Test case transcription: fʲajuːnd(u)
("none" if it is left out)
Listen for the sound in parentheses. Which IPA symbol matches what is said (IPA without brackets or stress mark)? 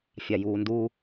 u